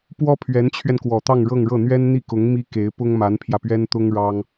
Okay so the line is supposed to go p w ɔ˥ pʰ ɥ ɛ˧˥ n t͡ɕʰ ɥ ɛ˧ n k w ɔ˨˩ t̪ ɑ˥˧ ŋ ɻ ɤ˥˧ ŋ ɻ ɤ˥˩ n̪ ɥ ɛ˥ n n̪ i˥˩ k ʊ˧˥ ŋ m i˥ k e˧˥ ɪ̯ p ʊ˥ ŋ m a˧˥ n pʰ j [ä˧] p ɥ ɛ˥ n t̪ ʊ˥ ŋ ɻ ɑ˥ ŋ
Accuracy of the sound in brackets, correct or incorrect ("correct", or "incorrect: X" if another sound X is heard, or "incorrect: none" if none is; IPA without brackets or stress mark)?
correct